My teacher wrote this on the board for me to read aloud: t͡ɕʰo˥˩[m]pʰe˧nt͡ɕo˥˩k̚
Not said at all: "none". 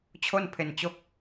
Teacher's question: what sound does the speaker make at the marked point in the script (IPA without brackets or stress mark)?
n